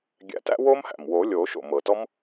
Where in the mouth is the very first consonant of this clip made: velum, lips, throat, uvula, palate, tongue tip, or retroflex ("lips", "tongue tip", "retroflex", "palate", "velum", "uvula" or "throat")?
velum